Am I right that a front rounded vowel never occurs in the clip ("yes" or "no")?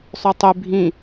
no